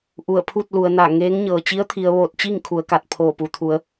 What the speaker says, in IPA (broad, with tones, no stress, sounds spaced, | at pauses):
ʔ u˧˩ ə̯ pʰ u˥˨ t̚ l u˩˧ ə̯ n a˧˩ ŋ e˧˥ ŋ ɲ ɤː˩ t͡ɕ i˧˥ ə̯ t̪ʰ i˩˧ ə̯ ʋ oː˧˩ t̚ t͡ɕ i˥˨ ŋ kʰ u˩˧ ə̯ k a˧˩ t̚ pʰ oː˧˩ p u˩ t̪ʰ u˩˧ ə̯